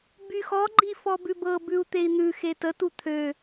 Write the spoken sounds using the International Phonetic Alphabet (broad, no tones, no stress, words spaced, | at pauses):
byxɔɡ͡ǃi fɔbʉbɤbʉu̯ t̪ei̯n̪ʉxe tətu t̪ʰø